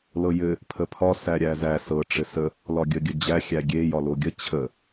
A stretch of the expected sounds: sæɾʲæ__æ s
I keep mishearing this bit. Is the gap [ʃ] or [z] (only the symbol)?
z